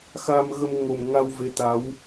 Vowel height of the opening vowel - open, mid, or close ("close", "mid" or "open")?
open